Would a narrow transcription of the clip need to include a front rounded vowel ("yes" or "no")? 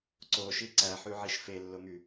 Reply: yes